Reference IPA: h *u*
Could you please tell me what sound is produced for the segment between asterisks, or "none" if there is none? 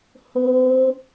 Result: o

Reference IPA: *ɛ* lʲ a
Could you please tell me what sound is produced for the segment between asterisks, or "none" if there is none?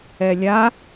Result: ɛ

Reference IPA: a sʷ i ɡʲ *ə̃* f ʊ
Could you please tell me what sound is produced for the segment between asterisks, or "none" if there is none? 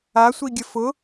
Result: ə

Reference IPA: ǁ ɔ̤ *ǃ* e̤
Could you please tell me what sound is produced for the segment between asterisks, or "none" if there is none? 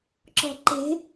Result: ǃ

